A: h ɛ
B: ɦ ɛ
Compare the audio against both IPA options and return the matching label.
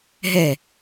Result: B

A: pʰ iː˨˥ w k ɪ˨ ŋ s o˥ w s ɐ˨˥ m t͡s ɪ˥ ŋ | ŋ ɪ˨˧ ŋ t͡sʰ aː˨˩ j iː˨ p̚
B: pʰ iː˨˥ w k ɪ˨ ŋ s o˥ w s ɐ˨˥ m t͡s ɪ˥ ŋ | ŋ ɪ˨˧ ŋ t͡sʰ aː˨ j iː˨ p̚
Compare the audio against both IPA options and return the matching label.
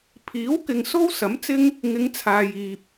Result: B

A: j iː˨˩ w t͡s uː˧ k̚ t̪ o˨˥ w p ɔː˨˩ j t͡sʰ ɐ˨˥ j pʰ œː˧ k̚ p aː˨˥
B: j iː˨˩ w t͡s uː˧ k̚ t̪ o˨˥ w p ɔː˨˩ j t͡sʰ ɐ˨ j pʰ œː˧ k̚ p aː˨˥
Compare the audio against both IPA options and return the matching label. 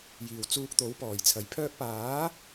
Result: B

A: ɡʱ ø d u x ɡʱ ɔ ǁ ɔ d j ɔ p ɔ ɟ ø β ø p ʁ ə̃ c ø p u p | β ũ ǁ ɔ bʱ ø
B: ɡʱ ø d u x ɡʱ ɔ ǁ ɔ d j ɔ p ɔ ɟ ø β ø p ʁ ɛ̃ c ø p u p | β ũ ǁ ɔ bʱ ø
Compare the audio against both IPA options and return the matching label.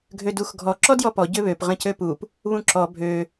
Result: A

